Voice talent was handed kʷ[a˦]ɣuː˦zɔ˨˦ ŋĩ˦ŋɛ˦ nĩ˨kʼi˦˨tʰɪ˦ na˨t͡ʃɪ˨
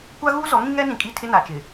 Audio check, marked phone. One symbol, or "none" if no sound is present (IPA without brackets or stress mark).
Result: a˦